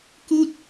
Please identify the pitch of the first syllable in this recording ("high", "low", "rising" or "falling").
falling